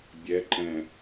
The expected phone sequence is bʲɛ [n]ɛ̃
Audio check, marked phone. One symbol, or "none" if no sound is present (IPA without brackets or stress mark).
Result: ǃ